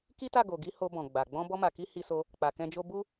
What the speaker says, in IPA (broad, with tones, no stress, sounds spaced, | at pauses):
k i˦ t a˦˨ ɡ o˨ ɡ i˧ h o˧ b ɔ̃˨ ɡ͡b a˨ ɡ͡b ɔ̃˧ b ɔ˧ m a˨ k i˧ h i˧ s o˧ | k͡p a˨ k ɛ̃˧ d͡ʒ o˦ b u˦